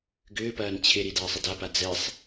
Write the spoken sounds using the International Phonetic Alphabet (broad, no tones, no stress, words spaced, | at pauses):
ɡʏːpɐːn t͡ɕʰɪɾid aːsˤɐdapa d͡zɛsˤ